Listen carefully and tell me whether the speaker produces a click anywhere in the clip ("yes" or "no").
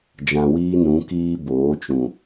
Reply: no